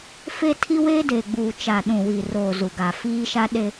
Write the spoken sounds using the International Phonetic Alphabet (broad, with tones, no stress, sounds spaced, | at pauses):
f e˦ tʰ i˦ w e˦ d e˨ ɡ͡b uː˨ t͡ʃ a˨ ɗ ũ˨ w i˨ r oː˨ z u˨ ɡ a˨ f iː˦ ʃ a˦ ɗ e˦